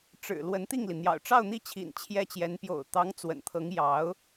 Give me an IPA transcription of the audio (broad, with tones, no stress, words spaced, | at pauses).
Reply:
ʈ͡ʂɻ̩˨˩ lwə˧˥nt̪i˥˩ŋli˩n̪jɑ̰˨˩ʊ̯ ʈ͡ʂɑ˥˧ʊ̯n̪i˥˩t͡ɕʰḭ˨˩n t͡ɕʰjɛ˥t͡ɕjɛ˧˥n pjo̰˨˩ʊ̯t̪ɑ˧˥ŋ t͡swə̰˨˩nt̪ʰɤ˧˥ŋ jɑ˧˥ʊ̯